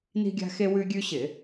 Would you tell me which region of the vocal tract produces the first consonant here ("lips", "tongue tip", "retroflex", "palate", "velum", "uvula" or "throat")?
tongue tip